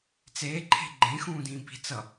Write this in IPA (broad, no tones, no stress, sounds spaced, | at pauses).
t͡s eː ǃʰ e̤ ɡ͡ǃ ẽ x ũː d ĩː b i̤ t͡s ʌ